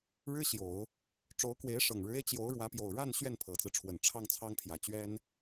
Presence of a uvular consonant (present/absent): absent